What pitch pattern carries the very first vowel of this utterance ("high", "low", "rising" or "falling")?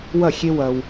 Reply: falling